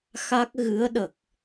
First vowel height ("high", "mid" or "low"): low